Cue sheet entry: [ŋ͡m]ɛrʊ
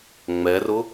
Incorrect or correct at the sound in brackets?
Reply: correct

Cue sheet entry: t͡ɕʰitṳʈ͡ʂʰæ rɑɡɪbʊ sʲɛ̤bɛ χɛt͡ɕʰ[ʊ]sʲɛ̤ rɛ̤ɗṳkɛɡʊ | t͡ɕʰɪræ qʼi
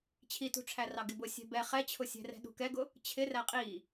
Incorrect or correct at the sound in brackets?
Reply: correct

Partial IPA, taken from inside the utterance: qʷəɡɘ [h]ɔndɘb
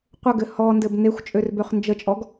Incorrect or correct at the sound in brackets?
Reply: correct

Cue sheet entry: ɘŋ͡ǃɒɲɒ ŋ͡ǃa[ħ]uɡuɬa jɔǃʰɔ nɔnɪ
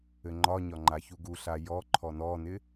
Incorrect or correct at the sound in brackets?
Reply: incorrect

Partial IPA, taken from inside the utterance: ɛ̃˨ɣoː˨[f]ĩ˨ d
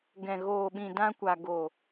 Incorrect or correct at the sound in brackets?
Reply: incorrect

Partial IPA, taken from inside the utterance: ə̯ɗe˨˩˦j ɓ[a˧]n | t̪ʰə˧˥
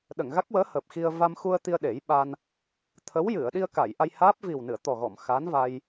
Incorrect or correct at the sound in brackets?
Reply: correct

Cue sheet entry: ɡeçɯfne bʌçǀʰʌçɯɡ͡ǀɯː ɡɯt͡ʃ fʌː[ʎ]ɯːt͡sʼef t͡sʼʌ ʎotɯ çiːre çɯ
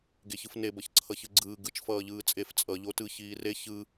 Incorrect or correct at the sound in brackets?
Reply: correct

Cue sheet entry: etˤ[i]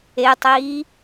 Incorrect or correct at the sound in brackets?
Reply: incorrect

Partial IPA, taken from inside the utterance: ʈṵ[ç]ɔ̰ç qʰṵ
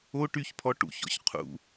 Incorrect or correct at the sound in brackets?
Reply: correct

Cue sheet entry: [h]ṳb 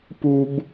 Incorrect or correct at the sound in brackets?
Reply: incorrect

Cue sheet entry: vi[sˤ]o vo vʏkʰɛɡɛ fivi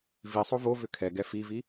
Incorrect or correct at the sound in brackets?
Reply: correct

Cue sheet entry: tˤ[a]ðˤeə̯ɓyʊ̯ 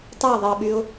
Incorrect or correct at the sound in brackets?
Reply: correct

